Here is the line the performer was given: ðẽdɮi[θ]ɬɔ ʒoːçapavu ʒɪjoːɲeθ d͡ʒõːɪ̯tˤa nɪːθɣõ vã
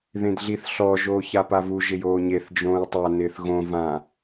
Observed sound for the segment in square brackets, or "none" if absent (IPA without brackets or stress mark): θ